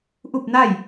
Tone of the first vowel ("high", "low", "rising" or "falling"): falling